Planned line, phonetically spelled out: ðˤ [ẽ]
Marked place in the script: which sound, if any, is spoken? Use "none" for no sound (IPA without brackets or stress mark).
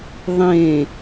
ẽ